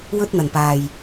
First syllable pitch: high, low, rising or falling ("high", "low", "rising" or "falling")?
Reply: high